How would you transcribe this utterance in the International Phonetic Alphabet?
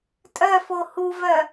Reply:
tʼ œ f o h u v œ

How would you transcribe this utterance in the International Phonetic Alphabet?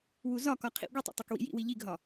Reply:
w u z ɒ k ɒ qʰ ḭ ɡʷ i tˤ ṵ tˤ o k w ḭ j ḭ w i ʎ i ɡ ɦ ɒ

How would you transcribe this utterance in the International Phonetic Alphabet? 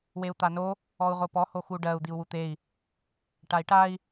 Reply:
w e u̯ t̪ a n o | ɔ u̯ ʁ o p ɔ h o x u ɖ ɜ u̯ d̪ i u̯ w u t̪ e i̯ | ʈ a i̯ ʈ a i̯

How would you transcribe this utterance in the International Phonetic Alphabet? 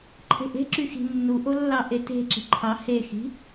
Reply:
ǃʰ e̤ ʔ e̤ ǁ y x i̤ nː u ʔ o lː ɑ ʔ e t e̤ ǁ i̤ ǃʰ ɑ h e x i̤

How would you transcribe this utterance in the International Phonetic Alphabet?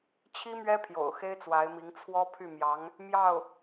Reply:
t͡ɕʰ i˥ m ɥ ɛ˥ pʰ j o̰˨˩ ʊ̯ x e˥ ɪ̯ t͡s w a˧˥ ɪ̯ m i˧˥ ŋ t͡sʰ w ɔ˥ pʰ y˥˩ m j ɑ˧˥ ŋ | m j ɑ˥˩ ʊ̯

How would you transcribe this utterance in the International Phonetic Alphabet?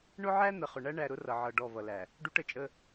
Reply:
ɳ ʊ˦ ʕ æ˦ n̪ ə˨ χ ʊ˨ ɳ æ˦ ɳ æ˨ ɾ ʊ˦ r ʌ˨ ʕ ʌ˨ ɖ ɔ˦˨ v ʌ˨ l æ˨ | ɖ u˦ ʈ ə˨ t͡ʃʼ ə˦

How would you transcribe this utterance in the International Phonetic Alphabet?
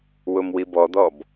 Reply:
w ʊ m w i b ɔ d̪ ɔ b

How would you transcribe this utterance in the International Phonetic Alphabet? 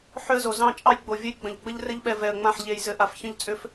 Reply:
ħ ʏ˦ ə̯ z o˨ z ɑ̃˦˨ t͡ʃʼ ɑ˦ j ɡ͡b o˨ vʲ ə˦ j ɡ͡b ə̃˨ ʎ ɡ͡b ə˦ ʎ r ɘ˦ ʎ ɓ ɛ˨ v ɛ˨ ə̯ ŋ͡m ã˦˨ ħ ʎ e˨ j z ɘ˨ ʔ a˨ f ç ə̃˦ ʎ t͡sʼ ʏ˦ f

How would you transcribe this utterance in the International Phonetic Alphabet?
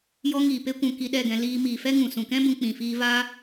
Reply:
j ɔ˧ ŋ iː˨ p e˦ kʷ ũ˧ k i˧ ɗ ɛ˦˨ ɡ ɛ̃˧ l iː˧ m iː˨ f ɛ˦ ŋ ũ˨ s ũ˨ k ɛ̃˦ b ũ˧ k͡p ĩ˨ f iː˧ v aː˦

